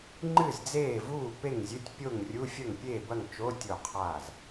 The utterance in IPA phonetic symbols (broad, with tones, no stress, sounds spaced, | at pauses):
ŋ͡ǃ ɨ˥˩ z d͡z eː˥˩ v uː˥˩ p e˥˩ ŋ zʲ ɨ˧˥˧ tʲ pʲ o˥˩ ŋ rʲ u˧˥˧ fʲ ɐ˥˩ ŋ pʲ eː˥˩ b ɐ˥˩ ŋ t͡ʃ o˧˥˧ tʲ o˥˩ qʰ aː˥˩ z